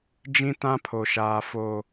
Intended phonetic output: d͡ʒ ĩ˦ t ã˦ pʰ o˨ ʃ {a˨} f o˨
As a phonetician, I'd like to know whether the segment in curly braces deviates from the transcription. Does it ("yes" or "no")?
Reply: yes